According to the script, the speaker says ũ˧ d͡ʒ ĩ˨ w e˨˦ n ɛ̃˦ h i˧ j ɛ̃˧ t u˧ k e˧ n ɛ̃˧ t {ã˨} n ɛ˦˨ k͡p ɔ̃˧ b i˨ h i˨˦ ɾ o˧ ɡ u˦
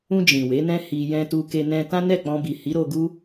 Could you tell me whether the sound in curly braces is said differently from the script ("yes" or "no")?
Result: yes